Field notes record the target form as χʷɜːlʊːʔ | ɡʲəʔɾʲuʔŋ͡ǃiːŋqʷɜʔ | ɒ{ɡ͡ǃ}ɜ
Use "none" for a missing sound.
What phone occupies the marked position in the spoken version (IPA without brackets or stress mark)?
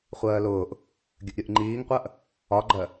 ɡ͡ǃ